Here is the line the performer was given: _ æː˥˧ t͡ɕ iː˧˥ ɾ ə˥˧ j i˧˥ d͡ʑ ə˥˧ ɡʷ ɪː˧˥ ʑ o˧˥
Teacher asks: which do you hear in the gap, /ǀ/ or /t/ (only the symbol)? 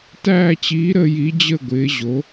t